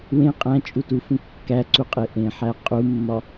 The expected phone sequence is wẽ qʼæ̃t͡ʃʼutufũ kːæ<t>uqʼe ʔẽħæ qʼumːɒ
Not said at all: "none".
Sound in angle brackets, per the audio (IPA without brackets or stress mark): ǀ